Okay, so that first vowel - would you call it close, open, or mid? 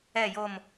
mid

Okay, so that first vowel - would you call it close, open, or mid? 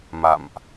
open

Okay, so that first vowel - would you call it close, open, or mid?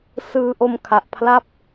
close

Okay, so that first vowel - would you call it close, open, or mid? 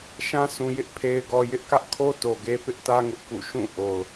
open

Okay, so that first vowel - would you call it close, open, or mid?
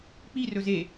close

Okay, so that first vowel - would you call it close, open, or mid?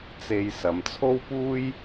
mid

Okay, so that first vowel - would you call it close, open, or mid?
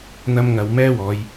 open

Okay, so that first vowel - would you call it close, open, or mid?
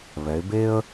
mid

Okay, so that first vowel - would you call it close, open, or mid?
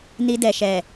close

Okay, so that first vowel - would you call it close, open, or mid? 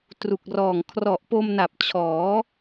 close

